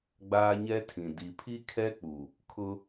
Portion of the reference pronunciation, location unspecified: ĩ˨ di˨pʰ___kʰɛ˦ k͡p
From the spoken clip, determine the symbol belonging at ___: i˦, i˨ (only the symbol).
i˦